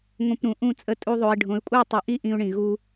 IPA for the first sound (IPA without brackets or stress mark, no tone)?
ŋʷ